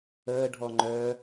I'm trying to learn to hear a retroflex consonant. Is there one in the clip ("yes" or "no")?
yes